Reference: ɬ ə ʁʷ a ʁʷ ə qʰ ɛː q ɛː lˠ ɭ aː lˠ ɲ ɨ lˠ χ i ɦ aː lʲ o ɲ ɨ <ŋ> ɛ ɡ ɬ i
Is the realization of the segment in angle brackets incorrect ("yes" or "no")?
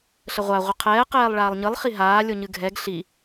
yes